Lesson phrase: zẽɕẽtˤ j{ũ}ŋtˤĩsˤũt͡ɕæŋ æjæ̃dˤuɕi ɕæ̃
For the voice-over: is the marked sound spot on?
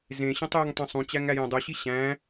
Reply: no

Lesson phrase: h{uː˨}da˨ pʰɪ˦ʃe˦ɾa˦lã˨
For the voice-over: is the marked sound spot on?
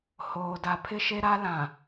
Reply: no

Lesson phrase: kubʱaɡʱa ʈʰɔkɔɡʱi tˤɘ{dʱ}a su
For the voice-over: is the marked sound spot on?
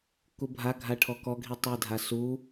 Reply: yes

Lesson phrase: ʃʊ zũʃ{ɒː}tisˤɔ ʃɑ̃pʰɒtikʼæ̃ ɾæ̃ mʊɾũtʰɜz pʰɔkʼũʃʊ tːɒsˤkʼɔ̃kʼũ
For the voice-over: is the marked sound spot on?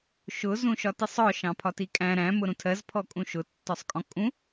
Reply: no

